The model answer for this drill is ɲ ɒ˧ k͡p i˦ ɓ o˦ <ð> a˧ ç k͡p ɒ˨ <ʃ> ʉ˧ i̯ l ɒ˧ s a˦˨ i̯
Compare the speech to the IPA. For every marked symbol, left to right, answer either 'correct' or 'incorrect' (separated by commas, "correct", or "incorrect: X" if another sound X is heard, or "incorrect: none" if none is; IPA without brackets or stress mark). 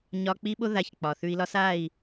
correct, incorrect: θ